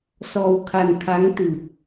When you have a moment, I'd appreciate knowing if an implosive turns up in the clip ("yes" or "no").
no